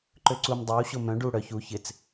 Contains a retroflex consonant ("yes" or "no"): yes